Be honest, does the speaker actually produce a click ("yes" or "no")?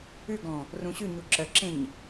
yes